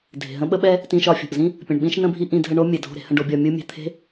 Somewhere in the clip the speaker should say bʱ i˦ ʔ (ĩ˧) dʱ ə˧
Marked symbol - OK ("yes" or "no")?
yes